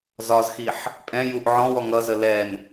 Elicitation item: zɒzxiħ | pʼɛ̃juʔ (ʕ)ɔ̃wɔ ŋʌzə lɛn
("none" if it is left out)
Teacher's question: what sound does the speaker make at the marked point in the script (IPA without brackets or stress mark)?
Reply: ʕ